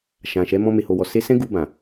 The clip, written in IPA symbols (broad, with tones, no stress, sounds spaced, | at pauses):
ʃ ã˨ ʃ ɛ˨˦ m ɔ̃˧ m e˨ h o˨ w ɔ˨ s e˧ s ɛ̃˦ ɡ u˧ b ã˨